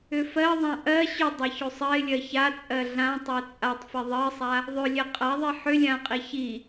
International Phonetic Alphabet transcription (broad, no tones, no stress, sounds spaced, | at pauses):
ʏ f ɜ ðˤ ã ʔ ɜ ɕ ʏ dˤ a ç o sˤ ɜ ɪ̯ lʲ ɜ ç a t͡sʼ ɜ ɮ ã tˤ ɜ t͡sʼ a tˤ f ɛ ðˤ ɜ sˤ a | ðˤ ɵ lʲ ɛ qʼ a ðˤ i ħ ʏ lʲ ã qʼ i ç i